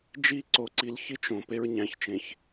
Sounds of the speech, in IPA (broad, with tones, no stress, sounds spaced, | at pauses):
d͡ʒ i˦ ǀ o˨ ǀ i˨ l ç i˦ t͡ʃ õ˨ p e˦ ɹ ɲ æ̃˨ ç t͡ʃ ẽ˨ ç